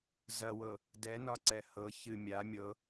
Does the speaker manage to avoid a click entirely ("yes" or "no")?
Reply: no